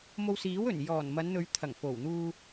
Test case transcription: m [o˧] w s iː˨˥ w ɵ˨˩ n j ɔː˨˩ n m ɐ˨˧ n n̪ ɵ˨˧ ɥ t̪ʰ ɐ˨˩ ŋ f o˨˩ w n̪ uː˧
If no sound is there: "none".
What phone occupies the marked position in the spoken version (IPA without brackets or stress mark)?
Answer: o˧